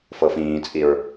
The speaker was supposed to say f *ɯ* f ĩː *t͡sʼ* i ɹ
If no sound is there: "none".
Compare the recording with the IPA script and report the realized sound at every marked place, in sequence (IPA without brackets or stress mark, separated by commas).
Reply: ɤ, t͡sʼ